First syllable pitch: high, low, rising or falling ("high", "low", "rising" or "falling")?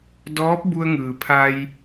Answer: rising